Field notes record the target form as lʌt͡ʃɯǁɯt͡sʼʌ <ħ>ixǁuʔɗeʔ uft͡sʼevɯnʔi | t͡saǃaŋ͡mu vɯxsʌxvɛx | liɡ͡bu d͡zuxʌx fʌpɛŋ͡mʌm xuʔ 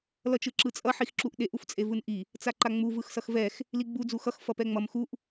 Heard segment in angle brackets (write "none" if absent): ħ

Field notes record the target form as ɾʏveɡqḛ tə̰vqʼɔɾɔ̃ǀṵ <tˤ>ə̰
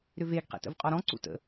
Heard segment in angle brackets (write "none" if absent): t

